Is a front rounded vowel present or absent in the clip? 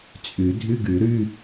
present